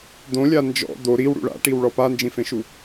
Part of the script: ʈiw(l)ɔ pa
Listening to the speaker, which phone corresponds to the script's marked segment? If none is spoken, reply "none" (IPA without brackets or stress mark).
ɭ